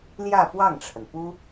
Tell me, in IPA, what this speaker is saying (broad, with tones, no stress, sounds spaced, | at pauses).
l j ä˥˧ p w ɑ˥˩ ŋ ʈ͡ʂʰ ə˩ n p u˥